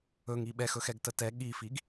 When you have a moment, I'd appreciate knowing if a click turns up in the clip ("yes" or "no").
no